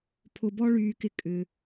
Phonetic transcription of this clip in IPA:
pʰʊ˧bɔ˥ ɭyː˧kɪ˧ kʼʏ˩

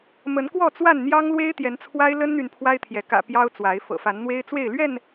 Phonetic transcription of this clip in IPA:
mə˨˦nkwɔ˥˨t͡swa˥˨nn̪jɑ˦ŋ lwe˦ɪ̯t̪jɛ˨˦nt͡sʰwa˦ɪ̯ lə˦nn̪y˨n pʰwa˦ɪ̯t̪ʰjɛ˨˦ kä̰˨˩ pjɑ˦ʊ̯ t͡swa˨˦ɪ̯ fɤ̰˨˩fa˨˦n n̪we˦ɪ̯t͡swe˥˨ɪ̯ lɥɛ˥˨n

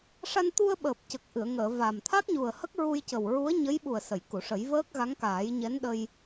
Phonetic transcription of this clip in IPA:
ʂa˧nt̪u˧ə̯ɓəː˨˩p̚ cə˨˩k̚ʔɨ˨˩˨ə̯ŋəː˨˩˨ va˨˩m t̪ʰa˦˥k̚ɲu˨˩ə̯ hə˦˥k̚ɹu˧jcə˨˩wɹu˧˥ə̯ ɲə˧˥j ɓu˨˩ə̯ sə˨˩˨jku˨˩˨ʂə˨˩˦j vəː˦˥k̚ɣa˧˥ŋkaː˨˩˦j ɲɛ˧˥nɗə˧j

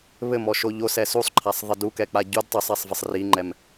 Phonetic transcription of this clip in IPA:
βɘmɔʃo ʎosɛ susˤǃʰasˤðˤɘ dukɛk͡pa ɟud tˤɘsˤɛsˤvɘsˤ riŋ͡ǃɛm

